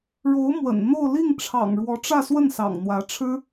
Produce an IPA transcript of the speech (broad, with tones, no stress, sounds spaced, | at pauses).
ɻ o˧˥ ʊ̯ m w ə̰˨˩ n n̪ o˥˧ ʊ̯ l i˥˩ ŋ ʈ͡ʂʰ ɑ̰˨˩ ŋ ɻ w ɔ˧˥ ʈ͡ʂ ä˥˧ s w ə˥˩ n s ɑ̰˨˩ ŋ n̪ w ä˧˥ ʈ͡ʂʰ ɻ̩˥